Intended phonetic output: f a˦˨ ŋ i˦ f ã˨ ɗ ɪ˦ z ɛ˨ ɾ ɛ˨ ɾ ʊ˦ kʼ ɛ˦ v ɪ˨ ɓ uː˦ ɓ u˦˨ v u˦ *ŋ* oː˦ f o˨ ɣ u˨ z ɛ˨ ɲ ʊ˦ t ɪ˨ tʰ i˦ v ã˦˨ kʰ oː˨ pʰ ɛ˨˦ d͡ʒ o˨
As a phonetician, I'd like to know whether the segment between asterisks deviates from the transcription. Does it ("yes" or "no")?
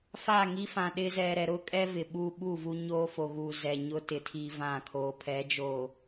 yes